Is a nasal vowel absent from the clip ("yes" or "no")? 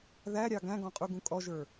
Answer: no